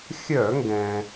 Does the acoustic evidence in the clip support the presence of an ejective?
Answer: no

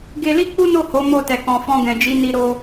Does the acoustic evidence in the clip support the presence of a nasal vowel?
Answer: yes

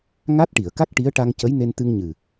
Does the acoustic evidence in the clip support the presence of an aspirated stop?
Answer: no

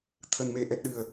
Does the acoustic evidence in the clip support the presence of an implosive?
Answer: yes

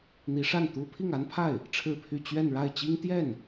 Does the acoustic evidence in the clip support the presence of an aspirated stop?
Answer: yes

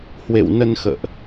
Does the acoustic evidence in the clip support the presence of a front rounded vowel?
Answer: no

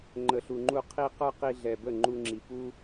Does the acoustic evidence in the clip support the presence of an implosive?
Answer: no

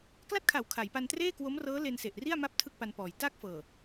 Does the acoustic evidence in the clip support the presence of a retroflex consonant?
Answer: no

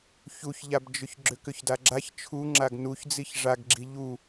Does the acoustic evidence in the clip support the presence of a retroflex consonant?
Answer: yes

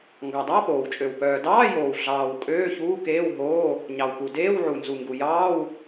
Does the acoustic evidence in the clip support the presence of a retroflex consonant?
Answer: no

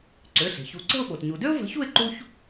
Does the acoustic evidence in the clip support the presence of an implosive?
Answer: yes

